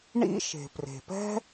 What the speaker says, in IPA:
ɳ ḭ˥ ʃ e̤˩ p r e̤˩ p ɛ̤˥

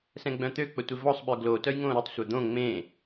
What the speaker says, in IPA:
s ɛ̃ ɡ͡b œ̃ t̪ ø k͡p ə tʷ e v ɔ sˤ ɓ œ ɡ l o t œ j ŋ õː ɾ u tˤ sʷ œ d̪ õ ŋ͡m ẽ

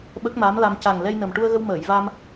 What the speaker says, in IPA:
ɓ ə˦˥ k̚ m a˧˥ m l a˧ m c a˨˩ ŋ l ɛ˧ j n ə˨˩ m ʈ u˧ ə̯ ɣ ə˧ w m əː˨˩˨ j v a˧ m

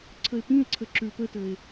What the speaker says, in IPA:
ǀʰ ə e̯ p ĩ e̯ ǀʰ ə ǁ y ɭ p ə t ə e̯

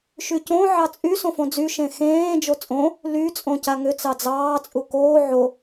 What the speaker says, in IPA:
ʃ y c õ ʕ ɑ t͡sʼ y s õ f õ d͡z y ʃ ẽ x ẽː d͡ʒ o t͡sʼ õ | l y t͡sʼ õ c a ŋ ʏ t͡s ɑ d͡z ɑː t͡sʼ u k oː ʕ o

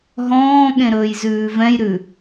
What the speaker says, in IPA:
ɦ ɔ̃ː ɠ ẽ ɾ ɵː j z ʉː v ɛ̃ j ɾ ʉ

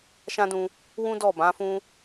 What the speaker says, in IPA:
ʃ ã˦ d ũ˧ | w ũ˦ d ɔ˦˨ b ã˨˦ f ũ˦

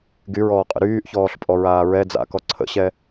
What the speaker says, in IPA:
ɡ y ɹ ɔː qʼ ə̰ ɾ yː ʔ ç ɔː ɬ pʼ ɔ ɹ aː ɹ ɛ d͡z a̰ k ɔ ǀʰ ə̰ ɕ ɛ

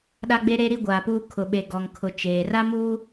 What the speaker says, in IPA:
ɗ a˦ ɡ͡b e˦ ɾ e˦ ɾ i˦ ɡʷ aː˨ p uː˦ kʰ ʊ˨ ɓ e˨ ɡ ɔ˨ ŋ kʰ ʊ˨ t͡ʃ eː˨ r a˦ m uː˦

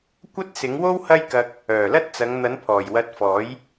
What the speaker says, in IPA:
kʷ ɐ˥ t̚ s ɪ˨˥ ŋ w o˥ w h ɐ˥ j k ɐ˧ k̚ | œː˨˩ l ɐ˥ t̚ t͡s ɐ˨˧ ŋ n̪ ɐ˨˥ n pʰ ɔː˨˩ j w ɐ˧ t̚ f ɔː˨˥ j

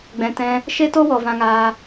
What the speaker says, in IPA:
ɡ͡b ɛ̃˨ t ɛ̃˧ | ʃ e˦ t o˦ w ɔ˨ v ã˧ ŋ aː˧

